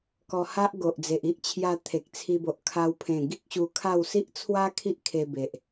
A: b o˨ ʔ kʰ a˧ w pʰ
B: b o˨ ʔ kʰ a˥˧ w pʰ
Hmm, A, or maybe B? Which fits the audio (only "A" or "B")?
A